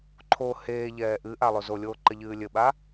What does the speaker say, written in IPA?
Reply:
ǃʰ o h eː ʎ ɛː ʔ ɨ ʔ a lˠ o z o lʲ oː ǃ ɘ ʎ ɨː lʲ ɘ ɓ a

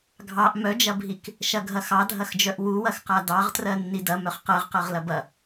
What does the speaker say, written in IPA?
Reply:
ɡʱ ɑ ʔ m œ d͡ʒ ɐ bʱ i k | ʃ ɐ ɡʱ ɐ x ɑ dʱ ɐ x d͡ʒ œ ʔ w u w ɐ x q a d ɑ ʁ t r ɜ nː i d ɐ m œ χ q ɜ ʁ q ɜ ʁ l ɐ b ɐ

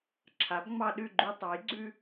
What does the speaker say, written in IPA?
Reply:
ǁʰ a˩˥ b ŋ͡m ɑ˦ ɗ ʉ˥˨ ɡ͡ǃ ʉ˦ tˤ ɑ˩˥ j ɡ͡ǀ ʉ˦

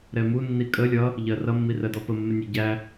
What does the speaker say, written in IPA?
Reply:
ɾ ɛ m u nː i kʼ ə lʲ ʌ | ʎ ɜ r ʌ mː i r ɜ d ɔ p ə mː ɪ nʲ æ ɟ æ

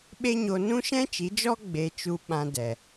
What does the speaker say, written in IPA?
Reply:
ɓ e˦ ɲ o˧ n ũ˦ ʃ ɛ̃˦ t͡ʃ i˨˦ d͡ʒ ɔ˦ ɡ͡b e˧ t͡ʃ u˧ ɓ ã˧ d ɛ˨

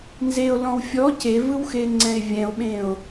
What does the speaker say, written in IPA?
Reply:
n z e o̯ l ɔ̃ w fʲ ɔ c e v ɯ w x e ŋ͡ǀ ɛ̃ e̯ vʲ ɛ̃ o̯ ɓ ẽ o̯

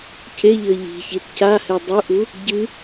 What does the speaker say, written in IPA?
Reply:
c e ʎ ɘ ʎ i̤ ç i t c a h ɛ dˤ u ʔ u | ɟ ɨ

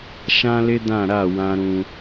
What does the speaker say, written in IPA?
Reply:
ʃ ã˦ l ɪ˦ d ã˦˨ ɾ a˦˨ w ã˦ ɾ ũ˦

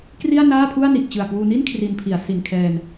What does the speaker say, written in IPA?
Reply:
k r i˥˩ a̯ n aː˥˩ pʰ u˥˩ a̯ n i˨˩ ʔ t͡ɕ ɯ˨˩ a̯ k w uː˧ n i˥˩ n kʰ r i˧ n pʰ i˩˦ a̯ s i˨˩ n kʰ ɛː˧ n

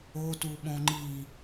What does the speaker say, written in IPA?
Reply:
o t u ɓ õ ŋ͡ǃ i

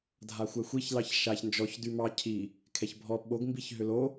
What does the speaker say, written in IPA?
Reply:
dʱ a xʷ ɛ xʷ i ç l ɑ ç ʃ a ç n d͡ʒ ɔ ç d y m ɑ cʰ i | kʰ ɛ ç bʱ ɔ ɓ o ɡ m b i ç ɦ ʏ l o

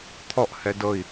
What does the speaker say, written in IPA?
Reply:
t̪ʰ ɔ ʔ h ɛ d ɤ i̯

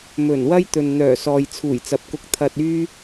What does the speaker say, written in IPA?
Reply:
m ɵ˨˩ n w ɐ˥ j t̪ ɵ˨ n n̪ œː˨˩ s ɔː˨ j t͡sʰ uː˨˩ j t͡s ɐ˨ p̚ k ʊ˧ k̚ t̪ʰ ɐ˧ t̚ yː˥

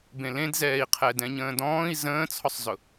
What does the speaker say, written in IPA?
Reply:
b ẽ l ẽ d z ɛː i̯ qʰ ɛ d ɛ̃ ɲ ə̃ː d ɔ̃ː i̯ z ə̃ː t͡sʰ ɔ sˤ z ʊ

